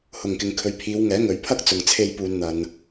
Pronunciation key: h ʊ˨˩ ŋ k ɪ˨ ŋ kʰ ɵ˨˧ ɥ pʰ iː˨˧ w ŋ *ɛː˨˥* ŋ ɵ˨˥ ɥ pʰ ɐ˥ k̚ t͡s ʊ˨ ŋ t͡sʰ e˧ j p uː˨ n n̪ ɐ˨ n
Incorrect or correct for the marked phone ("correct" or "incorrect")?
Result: correct